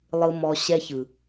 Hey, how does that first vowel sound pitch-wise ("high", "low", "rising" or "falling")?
low